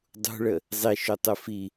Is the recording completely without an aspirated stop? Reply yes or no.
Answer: yes